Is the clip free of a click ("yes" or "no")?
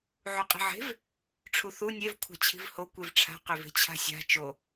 yes